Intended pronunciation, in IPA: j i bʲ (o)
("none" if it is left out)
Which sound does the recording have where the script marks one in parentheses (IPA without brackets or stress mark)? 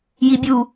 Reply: u